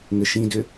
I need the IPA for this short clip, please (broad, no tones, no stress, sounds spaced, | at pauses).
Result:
ŋ ɘ ʃ ĩ d ʏ